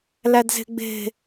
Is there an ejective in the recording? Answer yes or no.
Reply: no